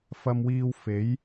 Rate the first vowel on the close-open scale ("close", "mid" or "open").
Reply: open